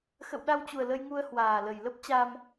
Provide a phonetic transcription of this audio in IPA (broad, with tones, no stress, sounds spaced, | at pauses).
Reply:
x ə̰˧˨ w ɗ a˧ w t͡ɕ u˨˩ ə̯ l ə˧ j ŋ u˧ ə̯ h w aː˨˩ l ə˨˩ j l ə˦˥ p̚ t͡ɕ a˧ m